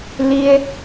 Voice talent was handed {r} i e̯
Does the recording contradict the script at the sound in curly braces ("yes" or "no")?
yes